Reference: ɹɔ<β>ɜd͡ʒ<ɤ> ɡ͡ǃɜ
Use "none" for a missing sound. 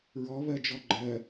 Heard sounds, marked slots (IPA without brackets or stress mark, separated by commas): β, ɔ